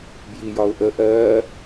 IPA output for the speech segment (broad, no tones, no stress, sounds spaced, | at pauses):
b j i j ɒ ʊ̯ ʔ ə ʔ ɜ